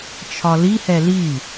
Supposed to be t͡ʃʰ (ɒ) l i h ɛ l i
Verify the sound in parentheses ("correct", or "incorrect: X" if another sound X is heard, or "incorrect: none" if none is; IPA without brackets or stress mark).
correct